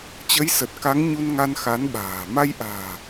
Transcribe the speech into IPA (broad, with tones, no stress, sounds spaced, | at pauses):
t͡ɕ ə˨˦ j s ə˨˩ t̚ k a˨˦ ŋ ɲ u˧ n ŋ a˧ n x a˨˦ n ɓ a̤ː˨˩ m a˧ j ʔ a̤ː˨˩